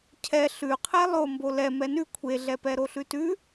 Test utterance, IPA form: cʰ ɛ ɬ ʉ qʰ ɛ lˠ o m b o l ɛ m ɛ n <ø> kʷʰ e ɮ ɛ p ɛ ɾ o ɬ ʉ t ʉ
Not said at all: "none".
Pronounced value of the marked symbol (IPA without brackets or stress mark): ʉ